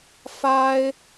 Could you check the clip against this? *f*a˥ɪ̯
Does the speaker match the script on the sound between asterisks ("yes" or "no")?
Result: yes